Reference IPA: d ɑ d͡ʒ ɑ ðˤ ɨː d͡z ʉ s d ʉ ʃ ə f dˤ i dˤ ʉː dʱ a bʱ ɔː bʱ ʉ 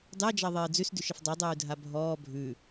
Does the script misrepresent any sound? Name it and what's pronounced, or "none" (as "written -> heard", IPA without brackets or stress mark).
none